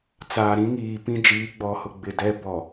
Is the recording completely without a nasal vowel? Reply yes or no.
no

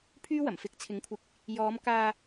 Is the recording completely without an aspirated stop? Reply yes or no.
no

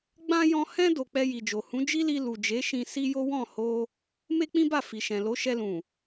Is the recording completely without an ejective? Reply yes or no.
yes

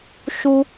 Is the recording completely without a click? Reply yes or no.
yes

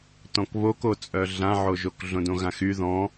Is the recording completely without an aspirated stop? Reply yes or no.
yes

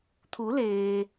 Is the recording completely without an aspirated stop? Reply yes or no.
no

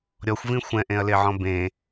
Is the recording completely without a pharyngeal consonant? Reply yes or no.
no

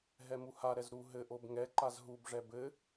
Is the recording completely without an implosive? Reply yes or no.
yes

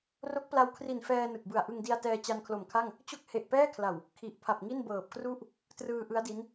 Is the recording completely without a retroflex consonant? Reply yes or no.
yes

